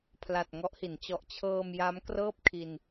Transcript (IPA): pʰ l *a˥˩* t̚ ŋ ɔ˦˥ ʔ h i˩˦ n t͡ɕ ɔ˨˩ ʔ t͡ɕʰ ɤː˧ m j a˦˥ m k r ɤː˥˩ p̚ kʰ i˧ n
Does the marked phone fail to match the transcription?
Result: yes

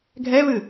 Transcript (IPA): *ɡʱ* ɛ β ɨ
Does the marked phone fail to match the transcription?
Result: no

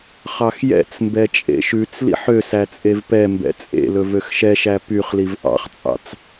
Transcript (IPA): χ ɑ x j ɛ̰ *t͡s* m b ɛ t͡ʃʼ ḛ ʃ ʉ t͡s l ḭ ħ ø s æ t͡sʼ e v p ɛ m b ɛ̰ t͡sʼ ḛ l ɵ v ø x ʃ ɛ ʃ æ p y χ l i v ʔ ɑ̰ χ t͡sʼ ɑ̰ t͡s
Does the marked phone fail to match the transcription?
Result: no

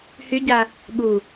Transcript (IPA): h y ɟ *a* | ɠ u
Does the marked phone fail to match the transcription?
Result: no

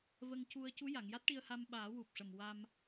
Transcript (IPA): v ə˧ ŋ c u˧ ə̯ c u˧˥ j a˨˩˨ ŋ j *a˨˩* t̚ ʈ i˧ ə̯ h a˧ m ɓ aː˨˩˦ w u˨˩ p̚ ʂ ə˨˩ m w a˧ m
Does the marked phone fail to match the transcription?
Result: yes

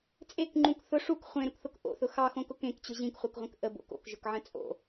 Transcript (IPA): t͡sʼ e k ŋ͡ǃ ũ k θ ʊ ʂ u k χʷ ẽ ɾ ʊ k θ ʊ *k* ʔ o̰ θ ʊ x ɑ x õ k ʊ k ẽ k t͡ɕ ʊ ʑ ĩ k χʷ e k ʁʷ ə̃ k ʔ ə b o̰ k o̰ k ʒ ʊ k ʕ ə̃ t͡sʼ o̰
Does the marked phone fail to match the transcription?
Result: no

